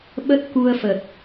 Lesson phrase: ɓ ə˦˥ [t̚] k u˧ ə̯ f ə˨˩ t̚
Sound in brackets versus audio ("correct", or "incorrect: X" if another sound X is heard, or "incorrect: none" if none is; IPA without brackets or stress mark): correct